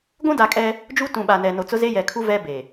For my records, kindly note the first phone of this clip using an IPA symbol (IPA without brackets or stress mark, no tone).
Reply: ɡʷ